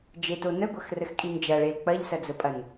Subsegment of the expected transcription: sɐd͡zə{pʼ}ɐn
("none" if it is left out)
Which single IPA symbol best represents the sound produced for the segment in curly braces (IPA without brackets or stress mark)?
pʼ